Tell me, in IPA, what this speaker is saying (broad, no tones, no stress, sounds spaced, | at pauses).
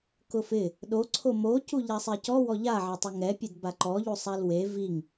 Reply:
k ʊ f ɪ | ɗ o ǀʰ o m o c u ʎ a sˤ ɛ c ɔ w ɔ ʎ a ʕ a tˤ ʊ ŋ ɛ pʲ e d b a ǃ ɔ ʎ u sˤ a l w e v i ŋ